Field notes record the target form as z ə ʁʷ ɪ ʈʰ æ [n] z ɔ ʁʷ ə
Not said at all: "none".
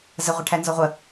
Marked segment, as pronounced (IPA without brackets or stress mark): n